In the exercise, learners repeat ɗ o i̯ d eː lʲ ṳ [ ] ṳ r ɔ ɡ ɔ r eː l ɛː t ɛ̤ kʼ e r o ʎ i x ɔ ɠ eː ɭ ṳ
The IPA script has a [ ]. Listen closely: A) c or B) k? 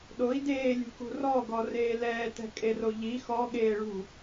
B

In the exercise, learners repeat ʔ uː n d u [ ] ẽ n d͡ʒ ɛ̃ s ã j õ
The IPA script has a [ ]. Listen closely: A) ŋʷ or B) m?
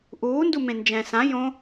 B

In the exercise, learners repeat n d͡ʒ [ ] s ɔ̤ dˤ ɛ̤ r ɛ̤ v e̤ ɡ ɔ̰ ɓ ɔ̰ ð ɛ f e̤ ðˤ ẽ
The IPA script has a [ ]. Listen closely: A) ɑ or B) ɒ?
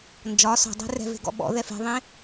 B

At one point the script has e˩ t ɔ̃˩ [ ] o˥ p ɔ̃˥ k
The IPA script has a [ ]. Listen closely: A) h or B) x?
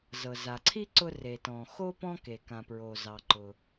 B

